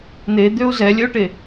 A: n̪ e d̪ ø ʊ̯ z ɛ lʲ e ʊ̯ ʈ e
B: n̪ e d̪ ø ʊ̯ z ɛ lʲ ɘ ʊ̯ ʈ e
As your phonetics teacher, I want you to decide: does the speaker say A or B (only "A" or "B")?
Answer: B